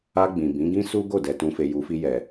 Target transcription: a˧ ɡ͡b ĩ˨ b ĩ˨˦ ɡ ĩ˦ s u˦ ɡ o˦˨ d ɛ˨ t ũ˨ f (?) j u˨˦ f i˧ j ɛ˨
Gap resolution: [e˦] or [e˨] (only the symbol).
e˨